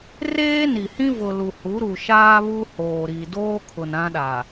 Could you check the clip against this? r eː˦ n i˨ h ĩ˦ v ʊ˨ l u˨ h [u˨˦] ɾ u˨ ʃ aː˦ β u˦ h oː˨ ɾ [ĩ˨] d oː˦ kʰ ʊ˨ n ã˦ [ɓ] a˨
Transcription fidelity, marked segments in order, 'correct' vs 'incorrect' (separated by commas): correct, incorrect, incorrect